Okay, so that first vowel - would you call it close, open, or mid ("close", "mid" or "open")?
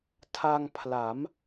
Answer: open